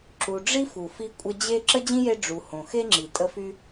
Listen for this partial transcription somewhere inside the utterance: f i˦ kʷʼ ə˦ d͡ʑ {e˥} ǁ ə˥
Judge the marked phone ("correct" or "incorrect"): correct